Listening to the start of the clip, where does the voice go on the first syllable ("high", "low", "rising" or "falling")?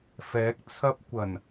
rising